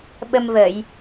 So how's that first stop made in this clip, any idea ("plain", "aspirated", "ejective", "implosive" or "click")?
implosive